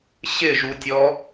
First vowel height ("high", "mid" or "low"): high